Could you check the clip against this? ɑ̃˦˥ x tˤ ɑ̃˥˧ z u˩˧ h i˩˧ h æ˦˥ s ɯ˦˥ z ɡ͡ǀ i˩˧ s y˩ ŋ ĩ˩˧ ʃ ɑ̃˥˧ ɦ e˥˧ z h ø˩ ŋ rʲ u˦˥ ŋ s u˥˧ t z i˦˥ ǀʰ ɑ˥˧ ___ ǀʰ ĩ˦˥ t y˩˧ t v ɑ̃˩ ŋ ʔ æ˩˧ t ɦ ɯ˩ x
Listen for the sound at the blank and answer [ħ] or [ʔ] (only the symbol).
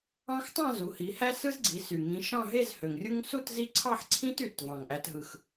ħ